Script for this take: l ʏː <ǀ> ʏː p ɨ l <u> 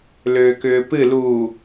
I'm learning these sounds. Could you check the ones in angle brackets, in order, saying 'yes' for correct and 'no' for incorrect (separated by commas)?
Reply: no, yes